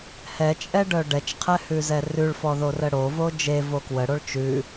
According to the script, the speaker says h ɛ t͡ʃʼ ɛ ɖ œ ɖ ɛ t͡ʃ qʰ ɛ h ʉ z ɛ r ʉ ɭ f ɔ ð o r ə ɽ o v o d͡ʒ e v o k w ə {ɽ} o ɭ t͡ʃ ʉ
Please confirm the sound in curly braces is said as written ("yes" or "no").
yes